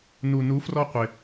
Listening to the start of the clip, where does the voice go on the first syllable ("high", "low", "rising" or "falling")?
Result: low